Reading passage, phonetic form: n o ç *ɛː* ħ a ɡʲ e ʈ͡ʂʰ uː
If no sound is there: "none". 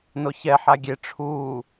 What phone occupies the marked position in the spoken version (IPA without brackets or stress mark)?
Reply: ɛ